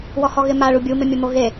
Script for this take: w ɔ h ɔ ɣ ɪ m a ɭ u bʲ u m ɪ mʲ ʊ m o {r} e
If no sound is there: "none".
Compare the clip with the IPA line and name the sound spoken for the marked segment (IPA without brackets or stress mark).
ɣ